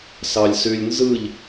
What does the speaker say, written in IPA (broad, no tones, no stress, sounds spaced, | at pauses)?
s ɑ lʲ s y lʲ n z ɯ ʎ